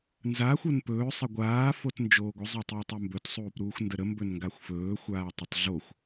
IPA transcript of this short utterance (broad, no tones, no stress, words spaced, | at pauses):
nzaːxʷ onpɵː sˤəɡʷaː fotnd͡ʒoːɡʷə zˤotˤuːtˤombɵt sˤuːpɾuːxʷndəɾə mbɵnŋɡaxʷfɵː xʷaːtˤətˤɮoxʷ